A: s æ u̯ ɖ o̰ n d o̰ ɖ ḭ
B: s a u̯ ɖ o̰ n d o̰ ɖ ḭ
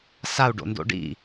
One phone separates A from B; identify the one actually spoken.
B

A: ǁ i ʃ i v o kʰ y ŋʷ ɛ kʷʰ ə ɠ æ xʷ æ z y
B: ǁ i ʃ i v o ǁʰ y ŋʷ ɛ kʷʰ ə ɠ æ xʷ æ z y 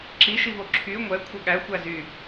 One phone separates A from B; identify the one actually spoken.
B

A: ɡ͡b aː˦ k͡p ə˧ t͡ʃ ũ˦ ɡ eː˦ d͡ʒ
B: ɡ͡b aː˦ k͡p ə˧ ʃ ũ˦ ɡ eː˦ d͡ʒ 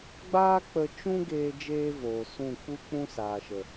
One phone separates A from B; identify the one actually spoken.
A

